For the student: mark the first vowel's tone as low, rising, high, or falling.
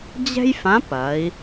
high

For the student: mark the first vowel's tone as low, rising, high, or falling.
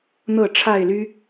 falling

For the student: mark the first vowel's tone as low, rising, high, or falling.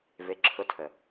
rising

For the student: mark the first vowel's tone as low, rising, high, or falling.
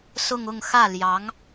falling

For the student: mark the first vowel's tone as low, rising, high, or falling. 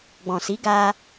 low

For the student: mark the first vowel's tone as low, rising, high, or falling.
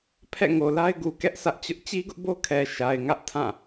falling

